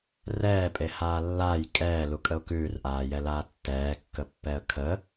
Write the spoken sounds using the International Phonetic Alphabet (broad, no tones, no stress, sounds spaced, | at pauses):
r ɛː pʼ e h aː lː aː j kʼ ɛː l u kʼ ə ʊ̯ k ʉː r ʔ aː j ɛ l aː tː ɛː kː ə pː ɛ ə̯ kʰ ə